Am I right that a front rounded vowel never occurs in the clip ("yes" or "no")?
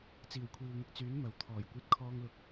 no